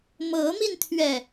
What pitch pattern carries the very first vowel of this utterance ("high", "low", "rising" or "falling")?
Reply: rising